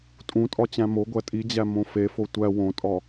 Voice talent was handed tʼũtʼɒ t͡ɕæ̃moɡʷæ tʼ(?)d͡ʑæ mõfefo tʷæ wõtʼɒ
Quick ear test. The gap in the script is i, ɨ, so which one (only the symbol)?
i